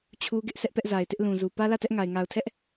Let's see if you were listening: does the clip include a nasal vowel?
yes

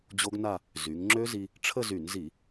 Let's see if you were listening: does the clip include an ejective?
no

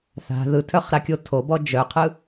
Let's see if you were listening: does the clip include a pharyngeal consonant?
no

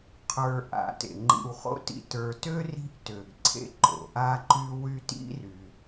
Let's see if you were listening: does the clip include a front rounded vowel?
yes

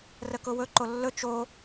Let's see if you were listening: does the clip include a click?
yes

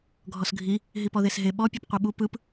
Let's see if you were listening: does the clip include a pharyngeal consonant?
no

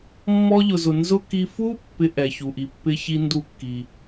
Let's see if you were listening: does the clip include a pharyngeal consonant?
no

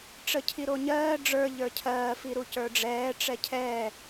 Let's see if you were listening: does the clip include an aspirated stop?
yes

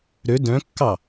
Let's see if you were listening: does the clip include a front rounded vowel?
yes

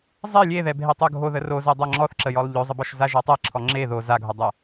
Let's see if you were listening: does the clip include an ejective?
no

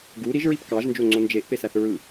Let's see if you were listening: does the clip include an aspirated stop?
no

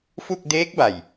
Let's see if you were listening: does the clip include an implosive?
no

